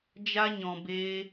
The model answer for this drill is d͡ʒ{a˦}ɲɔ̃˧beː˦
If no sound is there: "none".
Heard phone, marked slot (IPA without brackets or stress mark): a˦